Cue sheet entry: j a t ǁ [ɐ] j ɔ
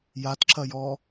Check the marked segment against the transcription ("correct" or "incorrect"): correct